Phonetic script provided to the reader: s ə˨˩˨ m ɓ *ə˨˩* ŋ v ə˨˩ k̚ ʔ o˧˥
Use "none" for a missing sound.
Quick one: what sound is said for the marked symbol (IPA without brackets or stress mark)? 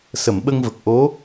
ə˧